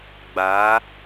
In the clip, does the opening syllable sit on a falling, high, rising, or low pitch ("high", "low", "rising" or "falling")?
rising